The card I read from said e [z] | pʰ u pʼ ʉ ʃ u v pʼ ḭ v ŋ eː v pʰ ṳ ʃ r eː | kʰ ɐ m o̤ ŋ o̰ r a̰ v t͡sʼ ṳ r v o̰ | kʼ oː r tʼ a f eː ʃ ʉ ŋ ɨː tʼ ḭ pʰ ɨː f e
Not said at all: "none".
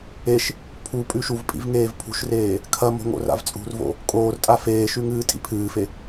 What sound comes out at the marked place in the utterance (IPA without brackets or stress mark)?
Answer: ʃ